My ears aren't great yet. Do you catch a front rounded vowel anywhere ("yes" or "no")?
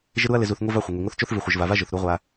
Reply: no